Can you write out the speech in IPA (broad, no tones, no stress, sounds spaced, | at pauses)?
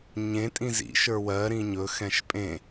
ɲ ẽ tʼ ĩ z ḭ ʃ ə˞ w ɜ ɾ ĩ ɲ ɵ x ɛ̃ ʃ pʼ ẽ